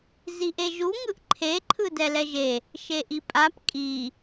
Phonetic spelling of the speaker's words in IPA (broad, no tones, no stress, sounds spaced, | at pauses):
z i ʔ e ʒ u ŋ ɯ ʔ ǃʰ e ǃʰ ɯ d ɛ l ɛ ʒ e | ʃ e ʔ i pʼ a p kʼ i